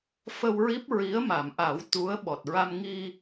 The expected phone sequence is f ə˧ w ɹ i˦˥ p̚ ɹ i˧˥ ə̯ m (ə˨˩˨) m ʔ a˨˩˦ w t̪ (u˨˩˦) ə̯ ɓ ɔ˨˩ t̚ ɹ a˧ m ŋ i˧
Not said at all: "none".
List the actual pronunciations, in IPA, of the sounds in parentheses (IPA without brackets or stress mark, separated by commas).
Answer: a˨˩˨, u˧˥